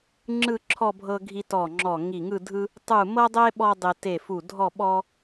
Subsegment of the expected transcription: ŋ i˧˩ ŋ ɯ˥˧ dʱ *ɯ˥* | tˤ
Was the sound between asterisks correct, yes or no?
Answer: yes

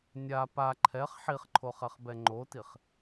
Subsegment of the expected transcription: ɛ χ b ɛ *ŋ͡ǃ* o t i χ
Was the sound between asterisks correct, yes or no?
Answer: yes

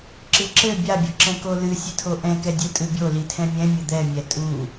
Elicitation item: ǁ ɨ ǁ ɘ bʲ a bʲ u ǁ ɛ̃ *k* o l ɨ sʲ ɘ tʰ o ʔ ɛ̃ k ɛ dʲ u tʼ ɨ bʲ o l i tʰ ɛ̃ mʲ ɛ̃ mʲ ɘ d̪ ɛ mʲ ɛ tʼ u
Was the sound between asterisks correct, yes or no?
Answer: yes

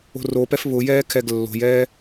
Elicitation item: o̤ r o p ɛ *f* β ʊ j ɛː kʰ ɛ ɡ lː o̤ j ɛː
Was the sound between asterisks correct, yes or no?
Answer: yes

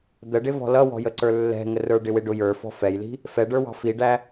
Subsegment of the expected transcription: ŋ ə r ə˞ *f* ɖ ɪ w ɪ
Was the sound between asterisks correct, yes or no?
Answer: no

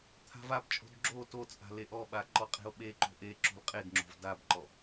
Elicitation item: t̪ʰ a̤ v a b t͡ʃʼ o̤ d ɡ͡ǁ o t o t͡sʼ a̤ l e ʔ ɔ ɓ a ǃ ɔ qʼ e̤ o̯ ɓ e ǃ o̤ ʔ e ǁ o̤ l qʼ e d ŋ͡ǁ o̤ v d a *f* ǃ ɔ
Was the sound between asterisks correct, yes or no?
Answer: no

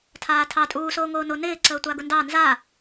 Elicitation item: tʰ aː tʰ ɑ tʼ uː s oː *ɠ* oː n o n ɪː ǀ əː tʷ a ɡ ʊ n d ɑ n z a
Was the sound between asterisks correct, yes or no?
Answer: no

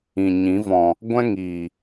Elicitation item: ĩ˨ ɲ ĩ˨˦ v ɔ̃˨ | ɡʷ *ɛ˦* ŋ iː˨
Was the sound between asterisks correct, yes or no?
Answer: no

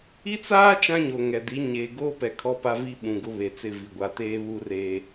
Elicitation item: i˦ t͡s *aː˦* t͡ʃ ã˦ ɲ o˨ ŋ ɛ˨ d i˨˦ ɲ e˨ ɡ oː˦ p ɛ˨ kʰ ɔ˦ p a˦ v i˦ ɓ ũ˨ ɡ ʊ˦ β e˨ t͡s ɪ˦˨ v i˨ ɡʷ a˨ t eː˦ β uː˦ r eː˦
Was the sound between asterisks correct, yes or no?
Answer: yes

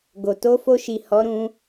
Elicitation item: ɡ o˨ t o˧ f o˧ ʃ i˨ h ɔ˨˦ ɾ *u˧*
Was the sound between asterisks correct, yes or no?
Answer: no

